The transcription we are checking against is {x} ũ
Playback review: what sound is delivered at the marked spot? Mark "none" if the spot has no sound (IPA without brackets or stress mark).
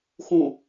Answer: x